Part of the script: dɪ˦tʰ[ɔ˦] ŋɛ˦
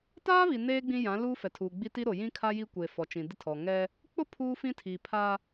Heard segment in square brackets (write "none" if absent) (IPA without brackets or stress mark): ɔ˨